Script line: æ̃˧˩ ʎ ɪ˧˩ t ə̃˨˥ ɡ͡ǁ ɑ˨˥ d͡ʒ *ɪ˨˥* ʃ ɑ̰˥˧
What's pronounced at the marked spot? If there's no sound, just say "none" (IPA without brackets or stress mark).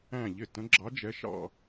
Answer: ɛ˨˥